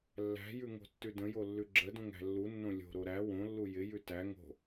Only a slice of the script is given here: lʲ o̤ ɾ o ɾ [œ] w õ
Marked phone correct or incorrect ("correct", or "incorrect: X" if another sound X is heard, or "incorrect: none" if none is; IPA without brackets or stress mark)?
incorrect: æ